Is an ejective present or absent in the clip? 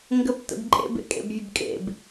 present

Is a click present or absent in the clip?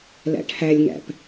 absent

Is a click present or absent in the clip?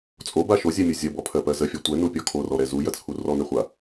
absent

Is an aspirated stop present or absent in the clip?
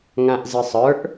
absent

